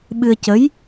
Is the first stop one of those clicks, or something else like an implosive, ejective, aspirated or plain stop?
implosive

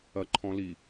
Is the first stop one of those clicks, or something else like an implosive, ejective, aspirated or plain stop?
click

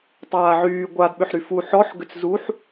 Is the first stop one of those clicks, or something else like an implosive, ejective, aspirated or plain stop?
plain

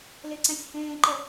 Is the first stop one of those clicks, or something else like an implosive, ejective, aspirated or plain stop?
click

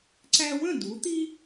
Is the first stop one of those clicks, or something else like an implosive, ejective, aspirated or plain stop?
click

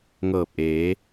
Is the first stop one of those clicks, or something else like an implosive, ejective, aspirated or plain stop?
plain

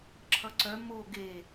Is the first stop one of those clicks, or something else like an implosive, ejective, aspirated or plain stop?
click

